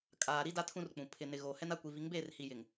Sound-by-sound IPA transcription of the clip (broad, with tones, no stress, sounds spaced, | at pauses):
kʼ aː˨ ɾ i˦ d a˦ tʰ ũ˦ r k͡p ũ˨ pʰ ɪ˨ n ɪ˨ ɣ oː˨ h ɛ˦ n a˦ kʷ i˨ v i˨˦ ŋ b eː˦˨ r h i˨ j ɪ˨ ŋ